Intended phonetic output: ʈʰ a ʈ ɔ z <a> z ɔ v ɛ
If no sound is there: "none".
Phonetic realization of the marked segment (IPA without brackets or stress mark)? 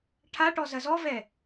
ɐ